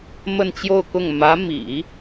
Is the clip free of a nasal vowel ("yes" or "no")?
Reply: yes